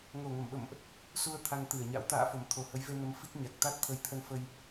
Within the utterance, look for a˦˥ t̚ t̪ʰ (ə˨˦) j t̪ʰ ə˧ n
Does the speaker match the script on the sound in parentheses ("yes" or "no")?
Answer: yes